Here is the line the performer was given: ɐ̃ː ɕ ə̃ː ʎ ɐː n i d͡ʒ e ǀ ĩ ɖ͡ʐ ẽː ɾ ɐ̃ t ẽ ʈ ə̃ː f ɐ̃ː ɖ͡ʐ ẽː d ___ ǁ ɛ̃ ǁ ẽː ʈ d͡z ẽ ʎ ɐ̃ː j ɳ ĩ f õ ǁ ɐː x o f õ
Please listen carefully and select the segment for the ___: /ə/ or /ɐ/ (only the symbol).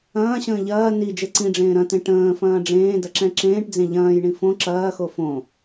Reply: ɐ